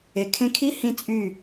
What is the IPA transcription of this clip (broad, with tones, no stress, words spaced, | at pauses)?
e˨kʰẽ˧kʰi˦ hĩ˦t͡sʼy˦˨